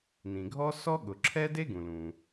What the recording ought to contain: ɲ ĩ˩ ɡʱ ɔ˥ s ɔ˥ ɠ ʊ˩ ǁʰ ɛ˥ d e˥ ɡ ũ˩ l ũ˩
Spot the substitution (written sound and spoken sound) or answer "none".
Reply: ɲ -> n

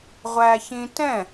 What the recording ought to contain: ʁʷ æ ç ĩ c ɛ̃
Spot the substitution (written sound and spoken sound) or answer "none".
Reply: c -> t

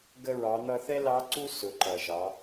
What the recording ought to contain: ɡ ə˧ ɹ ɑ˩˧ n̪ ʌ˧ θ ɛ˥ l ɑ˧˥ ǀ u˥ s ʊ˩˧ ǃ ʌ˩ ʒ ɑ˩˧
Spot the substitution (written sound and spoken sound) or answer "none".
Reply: none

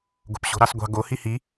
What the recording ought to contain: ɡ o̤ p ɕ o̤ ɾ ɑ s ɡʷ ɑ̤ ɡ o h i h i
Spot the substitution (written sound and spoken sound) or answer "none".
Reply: none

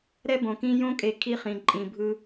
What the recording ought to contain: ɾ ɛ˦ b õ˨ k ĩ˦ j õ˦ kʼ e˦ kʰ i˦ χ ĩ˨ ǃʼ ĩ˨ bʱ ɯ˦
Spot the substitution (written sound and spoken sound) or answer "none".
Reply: e˦ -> e˨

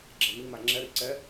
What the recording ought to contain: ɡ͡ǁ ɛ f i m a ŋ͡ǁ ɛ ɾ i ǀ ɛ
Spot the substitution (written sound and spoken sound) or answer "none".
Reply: f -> m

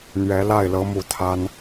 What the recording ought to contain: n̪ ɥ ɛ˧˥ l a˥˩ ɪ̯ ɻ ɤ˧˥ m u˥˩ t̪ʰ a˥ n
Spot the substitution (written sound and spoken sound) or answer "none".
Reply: ɻ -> l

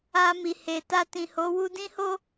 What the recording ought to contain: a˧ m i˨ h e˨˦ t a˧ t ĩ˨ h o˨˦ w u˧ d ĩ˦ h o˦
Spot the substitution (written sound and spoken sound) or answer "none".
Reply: e˨˦ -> e˨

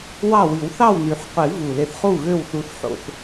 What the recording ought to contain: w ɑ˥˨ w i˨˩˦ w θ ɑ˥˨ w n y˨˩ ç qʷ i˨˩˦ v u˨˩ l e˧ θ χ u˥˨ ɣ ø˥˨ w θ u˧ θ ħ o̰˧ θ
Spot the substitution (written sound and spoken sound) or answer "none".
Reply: ç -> ħ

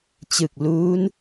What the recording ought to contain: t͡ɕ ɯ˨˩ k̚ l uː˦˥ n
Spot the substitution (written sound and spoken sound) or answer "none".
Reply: none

